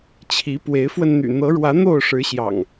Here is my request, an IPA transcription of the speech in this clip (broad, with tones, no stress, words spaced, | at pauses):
t͡ɕʰi˨˦ pwe˨˦ɪ̯fwə˧nn̪y̰˨˩ n̪ɤ˨˦ ɻwä˨˦ n̪o˥˨ʊ̯ʂɻ̩˨˦ɕjɑ̰˨˩ŋ